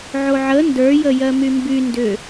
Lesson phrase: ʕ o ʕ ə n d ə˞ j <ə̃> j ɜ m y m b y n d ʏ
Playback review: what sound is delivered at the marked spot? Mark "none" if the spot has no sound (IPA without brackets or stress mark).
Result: ə